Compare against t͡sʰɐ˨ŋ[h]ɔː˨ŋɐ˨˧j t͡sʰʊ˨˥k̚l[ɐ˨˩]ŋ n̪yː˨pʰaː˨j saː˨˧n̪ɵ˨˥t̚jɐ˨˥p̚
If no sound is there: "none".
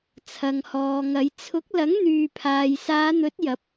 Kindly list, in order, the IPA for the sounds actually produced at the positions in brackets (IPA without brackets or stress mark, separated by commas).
h, ɐ˨˥